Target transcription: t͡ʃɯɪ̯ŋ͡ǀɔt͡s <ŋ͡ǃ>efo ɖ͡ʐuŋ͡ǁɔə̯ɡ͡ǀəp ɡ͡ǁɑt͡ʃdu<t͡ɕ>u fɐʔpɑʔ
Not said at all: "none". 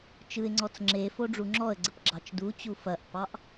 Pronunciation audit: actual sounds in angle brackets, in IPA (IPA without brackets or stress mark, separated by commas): ŋ͡ǁ, t͡ɕ